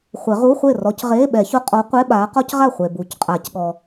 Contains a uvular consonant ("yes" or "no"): yes